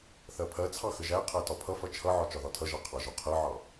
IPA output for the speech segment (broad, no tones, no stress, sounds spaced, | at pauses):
θ ɜ pʰ ɜ t͡sʰ ɑ x ə ʒ æ qʰ æ t ɒ pʰ ʌ f ʌ t͡ʃʰ ʌ ʕ ɒ t͡ʃ ɒ ð ɒ tʰ ʌ ʒ ɑ qʰ ɑ ʒ ɒ qʰ ɜ ʕ ɑ